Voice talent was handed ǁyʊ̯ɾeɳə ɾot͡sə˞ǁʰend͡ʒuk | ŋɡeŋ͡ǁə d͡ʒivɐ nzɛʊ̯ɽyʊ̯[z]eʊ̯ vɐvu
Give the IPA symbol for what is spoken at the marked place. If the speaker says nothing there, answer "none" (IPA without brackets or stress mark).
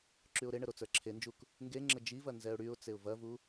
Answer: t͡s